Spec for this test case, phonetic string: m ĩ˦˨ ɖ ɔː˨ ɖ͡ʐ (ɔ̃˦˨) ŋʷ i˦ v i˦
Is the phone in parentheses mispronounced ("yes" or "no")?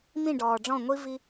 no